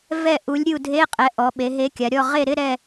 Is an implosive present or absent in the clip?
present